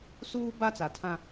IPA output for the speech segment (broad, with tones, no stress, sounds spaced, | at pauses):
s uː˦ b a˦ t͡s a˨ tʰ ã˦